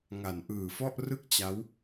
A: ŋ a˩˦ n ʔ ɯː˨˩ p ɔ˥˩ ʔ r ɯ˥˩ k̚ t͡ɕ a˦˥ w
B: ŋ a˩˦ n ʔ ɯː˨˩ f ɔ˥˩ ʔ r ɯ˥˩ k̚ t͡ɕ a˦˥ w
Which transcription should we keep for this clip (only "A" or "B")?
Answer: B